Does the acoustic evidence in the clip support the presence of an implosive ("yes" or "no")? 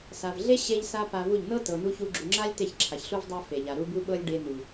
yes